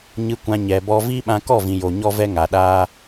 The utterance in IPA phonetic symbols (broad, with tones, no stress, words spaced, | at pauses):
ɲɨ˧kʷã˧ ɲɛ˨bɔ˧ viː˦ɓã˧kɔ˦˨vĩ˨ jo˨ ɲɔ˦vɛ˦ŋa˨ɗaː˦